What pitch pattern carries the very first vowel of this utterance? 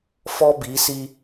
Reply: high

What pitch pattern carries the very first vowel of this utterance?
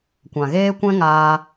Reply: low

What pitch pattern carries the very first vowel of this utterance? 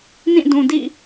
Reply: falling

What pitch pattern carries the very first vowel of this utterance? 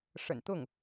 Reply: low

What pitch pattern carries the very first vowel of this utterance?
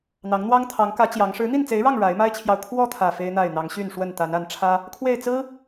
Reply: rising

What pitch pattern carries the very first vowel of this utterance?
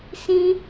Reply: high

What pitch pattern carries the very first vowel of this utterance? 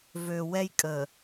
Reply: high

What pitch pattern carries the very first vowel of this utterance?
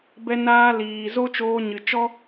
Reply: high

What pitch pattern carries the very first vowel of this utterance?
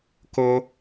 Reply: high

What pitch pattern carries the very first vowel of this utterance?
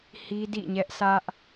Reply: high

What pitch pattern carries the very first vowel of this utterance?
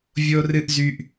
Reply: high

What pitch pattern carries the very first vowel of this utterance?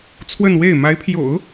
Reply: falling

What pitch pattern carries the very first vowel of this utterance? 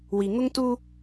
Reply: low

